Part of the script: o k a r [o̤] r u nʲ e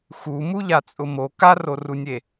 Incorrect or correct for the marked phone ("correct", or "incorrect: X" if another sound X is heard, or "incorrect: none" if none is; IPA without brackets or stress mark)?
incorrect: o